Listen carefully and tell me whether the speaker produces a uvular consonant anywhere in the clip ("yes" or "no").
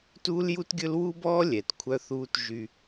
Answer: no